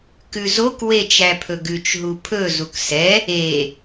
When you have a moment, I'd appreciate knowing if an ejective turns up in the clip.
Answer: no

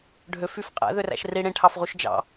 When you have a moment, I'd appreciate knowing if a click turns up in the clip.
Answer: no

